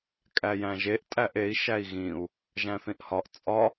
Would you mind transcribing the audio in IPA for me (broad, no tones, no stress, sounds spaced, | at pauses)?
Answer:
kʼ æ j æ̃ ʒ e ʔ tʼ æ ʔ e i̯ ʃ æ i̯ ɣ ĩ u̯ | ʒ æ̃ θ ĩ ʔ h ɒ ʔ t͡sʼ ɒ